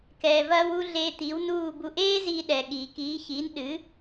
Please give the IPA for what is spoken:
k ɛː˩ v ɐː˧ w u˧ ɮ eː˧ t̪ iː˩˥ w n uː˥˩ b u˧ ʔ eː˥ z iː˧ ɗ ɛ˩ ɠ iː˩ k iː˩˥ ç iː˩˥ n ɗ ɨ˩˥

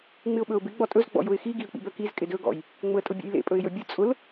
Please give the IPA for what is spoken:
ŋ͡m ɪ ʊ̯ ɓ ɵ ʊ̯ b ɪ ɡ͡b ɔ tʼ ɵ z ɡ͡b ɔ̰ j ʊ ɪ̯ x i ɡ i ə̯ k͡p ḭ b œ k i z kʼ ɪ d ɵ ɡ ɔ̰ j | ŋ͡m ʊ ə̯ tʼ ʊ bʲ ḛ j l ḛ pʼ ɵ ɪ̯ j ɵ bʲ ʊ t͡sʼ ʊ l

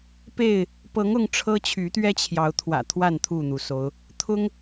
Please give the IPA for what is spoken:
p e˥˨ ɪ̯ | p ɤ˨˦ ŋ ʊ˦ ŋ ʈ͡ʂʰ ɤ˦ t͡ɕʰ y˨˦ t̪ ɥ ɛ˦ t͡ɕʰ j ɑ˨˦ ʊ̯ t̪ʰ w ä̰˨˩ t̪ʰ w a˥˨ n t̪ʰ u˥˨ n̪ u˩ s o˨˦ ʊ̯ | t̪ʰ ʊ˦ ŋ

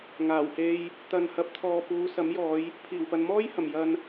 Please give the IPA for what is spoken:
ŋ aː˨˩ w h e˧ j | t̪ ɐ˨ n h ɐ˨ p̚ t̪ʰ ɔː˨ p uː˨˧ s ɐ˨˥ m j ɔː˨˧ j | pʰ iː˨˩ w p ɐ˨ n m ɔː˥ j h ɐ˨˩ m j ɐ˨ n

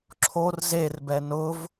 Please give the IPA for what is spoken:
ǁʰ o r z e r b ɛ n ʊ v

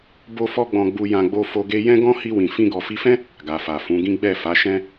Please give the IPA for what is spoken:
b o˦ f ɔ˦ ɡ͡b ɔ̃˧ ɡ͡b u˧ j ã˧ ɡ͡b o˧ f o˧ ɡ e˧ j ɛ̃˦ ɡ ɔ̃˦ h i˧ w ĩ˨ f ĩ˧ ɡ ɔ˨ f i˧ f ɛ̃˦ | ɡ a˨ f a˨ f ũ˨˦ ɡ ĩ˦ ɡ͡b ɛ˦˨ f a˨˦ ʃ ɛ̃˦

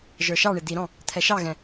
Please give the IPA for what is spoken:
ʒ ə˞ ʃ ɑ ɳ ɪ d̪ i ɾ ɔ̃ | t̪ʰ ɛ ʃ ɑ ɣ ɛ̃

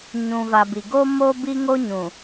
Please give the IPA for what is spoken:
ɲ ũ˨ v a˨ b i˨ ɡ o˦ m o˦ b i˦ ŋ o˦ ɲ ũ˨

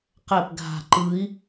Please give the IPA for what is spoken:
q ɛ p ɡʱ a̤ ǃ ɯ i̯

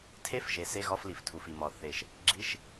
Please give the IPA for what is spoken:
tʰ e˧˥˧ f ʒ e˩ s e˧˥˧ ɣ ɒ˧˥˧ f l i˩ f tʰ u˩ f i˩ m ɒ˩ θ e˩ ʃ | ɡ͡ǁ i˧˥˧ ʃ

